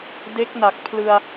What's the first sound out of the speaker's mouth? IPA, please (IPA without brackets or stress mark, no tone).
d